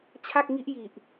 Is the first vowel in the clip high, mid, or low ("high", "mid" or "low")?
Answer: low